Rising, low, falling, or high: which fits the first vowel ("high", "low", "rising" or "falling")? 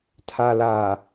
low